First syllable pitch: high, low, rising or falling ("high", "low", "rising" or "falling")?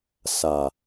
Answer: low